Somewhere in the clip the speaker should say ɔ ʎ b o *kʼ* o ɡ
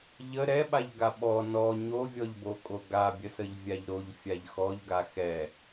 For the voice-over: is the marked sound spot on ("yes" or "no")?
yes